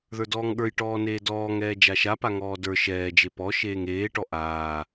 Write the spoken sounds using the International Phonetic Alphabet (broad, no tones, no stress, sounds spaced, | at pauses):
ð ə˞ d ɔː ŋ ɠ ə˞ j ʈ ɔː n eː d ɔː ŋ ɛː d͡ʒ a ʃ a p a ŋ ɔː d ə˞ ʃ ɛː d͡ʒ e p ɔ ʃ eː ŋ eː ʈ ɔ ʔ aː